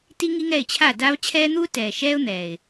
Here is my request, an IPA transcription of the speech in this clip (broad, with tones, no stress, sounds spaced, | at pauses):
t i˦ ŋ i˦ ŋ ɛ˦˨ ɪ̯ t͡ɕʰ a˦˨ d a˦ v t͡ɕʰ ɛː˦ n̪ uː˦ t ɛː˨ ʃ ɛː˦ ʊ̯ n̪ ɛː˨ ɪ̯